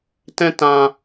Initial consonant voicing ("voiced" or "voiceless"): voiceless